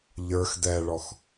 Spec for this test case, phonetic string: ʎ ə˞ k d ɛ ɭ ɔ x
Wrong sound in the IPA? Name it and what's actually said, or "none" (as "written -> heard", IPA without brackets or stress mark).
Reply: k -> x